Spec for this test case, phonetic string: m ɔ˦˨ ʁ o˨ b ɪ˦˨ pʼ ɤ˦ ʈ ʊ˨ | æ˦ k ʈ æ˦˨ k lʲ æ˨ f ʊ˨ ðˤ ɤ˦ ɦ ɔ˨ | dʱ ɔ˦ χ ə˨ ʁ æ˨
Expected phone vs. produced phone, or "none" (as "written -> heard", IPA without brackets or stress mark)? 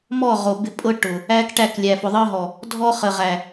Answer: none